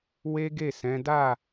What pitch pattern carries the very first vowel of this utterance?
high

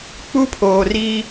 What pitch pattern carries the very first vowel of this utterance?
high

